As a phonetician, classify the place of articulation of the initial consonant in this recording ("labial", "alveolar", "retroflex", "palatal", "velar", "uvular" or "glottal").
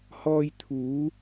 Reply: glottal